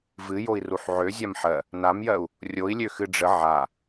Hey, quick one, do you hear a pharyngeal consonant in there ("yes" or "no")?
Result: yes